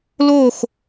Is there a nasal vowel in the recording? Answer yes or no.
no